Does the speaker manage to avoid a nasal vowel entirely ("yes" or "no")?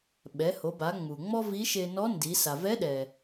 yes